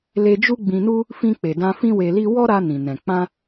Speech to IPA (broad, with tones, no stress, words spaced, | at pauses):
le˧d͡ʒu˦ɡ͡bĩ˧nu˦ | fĩ˧k͡pe˨dã˧ fĩ˦we˧li˦ wɔ˦ɾa˧ nĩ˨nɛ̃˨ k͡pã˧